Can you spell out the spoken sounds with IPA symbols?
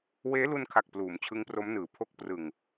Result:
w eː˦˥ l u˧ n kʰ a˨˩ k̚ p l uː˩˦ m t͡ɕʰ ɯ˦˥ ŋ p r o˦˥ m n ɯː˩˦ pʰ o˦˥ k̚ p r ɯ˨˩ ŋ

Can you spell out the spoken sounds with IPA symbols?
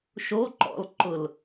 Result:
ʃ o ǃ ɔ̰ l ǃ ʊ l

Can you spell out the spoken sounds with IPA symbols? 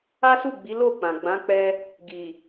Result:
a˦ s u˦˨ ɡ͡b i˨˦ l o˦˨ k͡p ã˨ ɡ͡b ã˨˦ k͡p ɛ˧ | ɡ i˨

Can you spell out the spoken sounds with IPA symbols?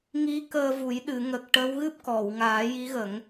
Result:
ŋ i˧˥ k əː˧ v u˨˩˦ j ɗ ɨ˨˩˨ ŋ ə˨˩ k̚ ʈ ə˧˥ w ɣ ɨ˦˥ p̚ k ɔ˨˩˨ w ŋ aː˨˩˦ j i˧˥ ɣ ə˨˩˦ ŋ

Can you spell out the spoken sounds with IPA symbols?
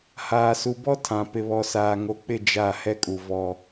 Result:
h aː˨ s u˨ b ɔ˦ tʰ ã˨ p ɪ˨ β ɔ˨ s aː˨ ŋ o˨ k͡p ɪ˦˨ d͡ʒ a˦˨ h ɛ˦ kʼ u˨ v ɔ˦

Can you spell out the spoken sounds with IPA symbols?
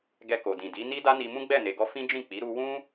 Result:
ɡ ɛ˧ k o˨ d ĩ˨ d i˨˦ n i˦ d a˦ n i˧ m ũ˦ ɡ͡b ɛ˦˨ n e˨ ɡ ɔ˧ f ĩ˦ d͡ʒ ĩ˦˨ k͡p i˨˦ ɾ u˧ w ũ˦

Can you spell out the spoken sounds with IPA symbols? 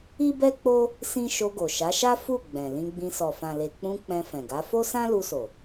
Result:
i˦ b ɛ˦ k͡p o˦ | s ĩ˦ ʃ o˧ ɡ o˨ ʃ a˨˦ ʃ a˦ f u˦˨ ɡ͡b ɛ̃˨ l ĩ˧ ɡ͡b ĩ˧ s ɔ˨ f ã˨ l e˨ k͡p ũ˧ k͡p ɛ̃˧ f ɛ̃˨ ɡ a˨˦ f o˦ s ã˦ l u˧ s o˨

